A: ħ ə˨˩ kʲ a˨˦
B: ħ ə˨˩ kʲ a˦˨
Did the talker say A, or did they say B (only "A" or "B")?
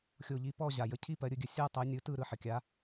A